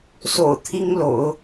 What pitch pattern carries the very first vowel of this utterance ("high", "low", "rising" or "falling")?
low